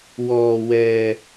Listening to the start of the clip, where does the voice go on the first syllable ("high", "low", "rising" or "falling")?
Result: high